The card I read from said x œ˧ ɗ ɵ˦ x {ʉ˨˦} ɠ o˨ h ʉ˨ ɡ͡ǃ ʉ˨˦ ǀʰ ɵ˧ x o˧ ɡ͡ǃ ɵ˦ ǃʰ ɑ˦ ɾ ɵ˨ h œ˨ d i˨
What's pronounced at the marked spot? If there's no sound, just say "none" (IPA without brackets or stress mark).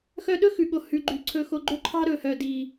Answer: ʉ˨